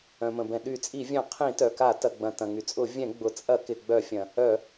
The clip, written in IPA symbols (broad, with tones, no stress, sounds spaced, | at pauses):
œ̃˩ m ə̃˩ b ɛ̃˩ ɗ y˧˩˧ t͡sʼ i˧˩˧ vʲ œ̃˧˩˧ qʰ ĩ˧˩˧ t œ˩ k a˧˩˧ t ɐ˩ ɡ͡b ɐ̃˩ t ɐ̃˩ ŋ y˩ t͡sʼ ʊ˧˩˧ vʲ ɛ̃˧˩˧ ɡ͡b ʊ˩ t͡sʼ ɐ˧˩˧ k ɪ˩ ɡ͡b œ˧˩˧ fʲ ɐ̃˩ | œ˧˩˧